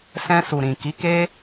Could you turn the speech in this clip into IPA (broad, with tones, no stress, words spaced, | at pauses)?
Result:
sɛ̃˧su˨ɾĩ˨ki˨˦ ke˦